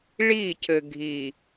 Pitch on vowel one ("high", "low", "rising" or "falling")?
falling